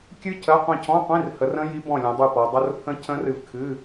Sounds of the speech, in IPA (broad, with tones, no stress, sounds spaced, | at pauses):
kʲ ɨ˦˥ cʰ ɜ˧˥˧ qʷ ĩ˦˨ cʰ ɔ̃˧˥˧ qʷ ĩ˧˥˧ r h ə˨˦ r ə̃˦˥ j i˦˥ b ɔ̃˦˨ lʲ ɔ̃˨˦ dˤ ɨ˦˨ p ɔ˨˦ dˤ ə˧˥˧ r pʰ ə̃˦˥ cʰ ə̃˦˥ r ɨ˦˨ v kʰ ɨ˧˥˧